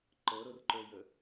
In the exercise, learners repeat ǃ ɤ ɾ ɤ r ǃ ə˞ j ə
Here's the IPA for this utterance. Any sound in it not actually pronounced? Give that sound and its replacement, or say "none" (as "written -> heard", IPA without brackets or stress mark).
none